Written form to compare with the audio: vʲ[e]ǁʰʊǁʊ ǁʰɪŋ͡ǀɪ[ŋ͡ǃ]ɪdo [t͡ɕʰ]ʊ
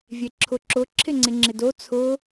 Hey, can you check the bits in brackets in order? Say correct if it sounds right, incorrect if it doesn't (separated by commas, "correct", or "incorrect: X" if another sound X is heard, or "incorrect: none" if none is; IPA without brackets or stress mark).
correct, incorrect: ŋ͡ǁ, incorrect: t͡sʰ